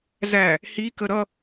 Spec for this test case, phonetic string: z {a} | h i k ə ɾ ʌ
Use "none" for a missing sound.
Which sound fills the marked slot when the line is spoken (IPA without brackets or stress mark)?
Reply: æ